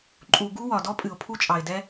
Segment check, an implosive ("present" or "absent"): absent